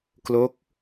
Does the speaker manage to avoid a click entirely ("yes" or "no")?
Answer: yes